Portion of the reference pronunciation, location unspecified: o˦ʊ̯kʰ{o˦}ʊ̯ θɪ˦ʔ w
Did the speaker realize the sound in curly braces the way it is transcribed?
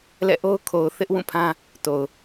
no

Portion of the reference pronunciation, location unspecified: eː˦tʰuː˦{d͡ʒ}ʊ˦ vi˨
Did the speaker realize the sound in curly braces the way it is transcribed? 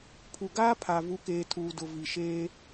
no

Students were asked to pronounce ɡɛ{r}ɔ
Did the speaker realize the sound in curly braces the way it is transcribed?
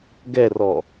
yes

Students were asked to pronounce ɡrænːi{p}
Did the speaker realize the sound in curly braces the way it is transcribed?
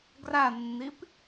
yes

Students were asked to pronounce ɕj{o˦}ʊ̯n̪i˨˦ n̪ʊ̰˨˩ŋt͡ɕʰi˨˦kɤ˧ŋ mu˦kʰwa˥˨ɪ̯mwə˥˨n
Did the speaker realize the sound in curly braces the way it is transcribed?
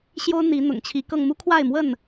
yes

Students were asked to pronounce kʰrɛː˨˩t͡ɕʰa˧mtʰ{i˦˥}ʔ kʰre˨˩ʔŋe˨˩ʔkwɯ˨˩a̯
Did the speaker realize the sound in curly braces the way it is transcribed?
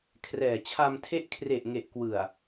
no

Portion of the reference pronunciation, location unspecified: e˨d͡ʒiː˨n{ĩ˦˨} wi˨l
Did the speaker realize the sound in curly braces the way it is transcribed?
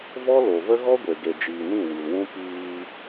yes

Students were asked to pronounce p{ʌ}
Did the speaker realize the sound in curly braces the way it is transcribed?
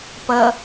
yes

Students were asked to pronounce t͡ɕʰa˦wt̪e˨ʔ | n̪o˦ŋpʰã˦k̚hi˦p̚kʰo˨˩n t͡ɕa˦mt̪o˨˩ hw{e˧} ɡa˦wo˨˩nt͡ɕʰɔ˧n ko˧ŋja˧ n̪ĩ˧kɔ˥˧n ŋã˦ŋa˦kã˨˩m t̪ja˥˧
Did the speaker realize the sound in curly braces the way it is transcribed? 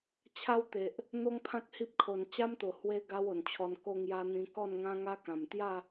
yes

